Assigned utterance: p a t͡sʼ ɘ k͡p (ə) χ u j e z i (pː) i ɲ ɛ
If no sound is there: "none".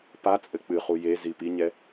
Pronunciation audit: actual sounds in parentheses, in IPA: ɨ, p

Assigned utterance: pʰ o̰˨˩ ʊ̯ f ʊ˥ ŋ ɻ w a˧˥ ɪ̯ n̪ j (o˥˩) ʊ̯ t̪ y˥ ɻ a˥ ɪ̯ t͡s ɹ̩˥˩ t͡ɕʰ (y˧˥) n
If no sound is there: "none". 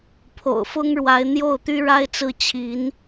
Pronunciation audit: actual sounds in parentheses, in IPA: o˥˩, i˧˥

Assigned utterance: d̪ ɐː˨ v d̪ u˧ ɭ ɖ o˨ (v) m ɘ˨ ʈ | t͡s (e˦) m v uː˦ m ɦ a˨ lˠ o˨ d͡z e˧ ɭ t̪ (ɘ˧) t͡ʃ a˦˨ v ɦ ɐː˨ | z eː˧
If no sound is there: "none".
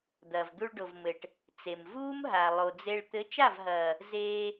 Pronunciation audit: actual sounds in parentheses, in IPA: v, e˨, ɘ˨˦

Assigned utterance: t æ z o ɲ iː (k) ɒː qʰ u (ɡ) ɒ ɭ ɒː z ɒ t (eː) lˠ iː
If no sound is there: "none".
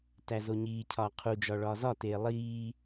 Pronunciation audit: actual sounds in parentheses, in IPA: cʰ, d͡ʒ, eː

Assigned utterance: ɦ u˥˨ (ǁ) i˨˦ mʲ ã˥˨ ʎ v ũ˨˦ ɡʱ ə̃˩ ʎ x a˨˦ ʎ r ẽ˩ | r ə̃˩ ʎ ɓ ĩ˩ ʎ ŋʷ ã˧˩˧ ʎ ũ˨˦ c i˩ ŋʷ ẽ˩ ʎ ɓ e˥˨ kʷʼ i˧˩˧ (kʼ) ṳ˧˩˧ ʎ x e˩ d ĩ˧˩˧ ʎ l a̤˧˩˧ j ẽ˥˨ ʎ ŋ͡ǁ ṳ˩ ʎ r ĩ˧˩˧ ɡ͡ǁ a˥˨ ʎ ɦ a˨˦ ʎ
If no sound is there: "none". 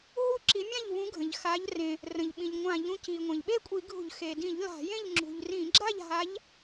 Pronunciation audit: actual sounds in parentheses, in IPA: ǁ, ɡʱ

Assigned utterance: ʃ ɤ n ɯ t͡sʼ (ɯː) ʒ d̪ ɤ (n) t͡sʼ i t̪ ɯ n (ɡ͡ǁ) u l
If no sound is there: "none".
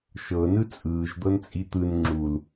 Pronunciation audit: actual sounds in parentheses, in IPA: ɯː, n, ŋ͡ǁ

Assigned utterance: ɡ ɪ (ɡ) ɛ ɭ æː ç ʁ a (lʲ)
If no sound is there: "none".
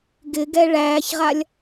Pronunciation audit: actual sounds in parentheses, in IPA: ɡ, lʲ

